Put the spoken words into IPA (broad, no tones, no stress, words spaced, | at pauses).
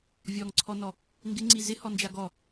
vʲɔŋǀʰɔnɔ | ŋɡɪŋ͡ǀi zɪhɔnd͡ʒa ɡɔ